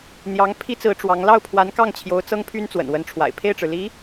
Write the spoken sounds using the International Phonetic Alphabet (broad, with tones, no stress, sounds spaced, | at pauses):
n̪ j ɑ˧˥ ŋ pʰ i˥ t͡s ɹ̩˧˥ ʈ͡ʂ w ɑ˧˥ ŋ l ɑ˥˩ ʊ̯ pʰ w a˧˥ n k ɑ˥˩ ŋ t͡ɕʰ j o˧˥ ʊ̯ t͡s ɤ˥ ŋ pʰ y˥ n t͡s w ə̰˨˩ n w ə˧˥ n ʈ͡ʂʰ w a̰˨˩ ɪ̯ pʰ e˥˩ ɪ̯ ʈ͡ʂ ɻ̩˩ l i˧˥